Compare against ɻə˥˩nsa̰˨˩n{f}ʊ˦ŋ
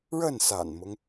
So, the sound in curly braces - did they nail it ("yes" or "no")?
no